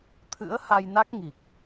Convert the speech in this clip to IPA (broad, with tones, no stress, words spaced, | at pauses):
t̪ʰɨ̰˧˥ə̯ha˧jna˦˥k̚ ŋi˨˩k̚